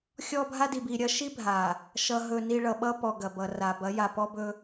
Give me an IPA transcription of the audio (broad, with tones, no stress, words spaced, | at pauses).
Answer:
xʲɔ˦bʱa˦ di˨bi˨ ɾʲɐ˦ʃi˦ bʱa˨ | ʃʌ˨ɦɵ˨ni˨ ɭʌ˨ɓʌ˦pɔ˨ ɡɐ˨bʌ˨ra˨ bɐ˨˦ja˨pɔ˦bɵ˦